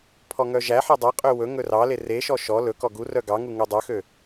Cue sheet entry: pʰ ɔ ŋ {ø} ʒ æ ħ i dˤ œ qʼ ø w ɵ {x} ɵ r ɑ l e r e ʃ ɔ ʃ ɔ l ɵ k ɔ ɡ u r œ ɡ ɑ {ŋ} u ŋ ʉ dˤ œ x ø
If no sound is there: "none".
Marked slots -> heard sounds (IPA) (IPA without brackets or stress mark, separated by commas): œ, ŋ, ŋ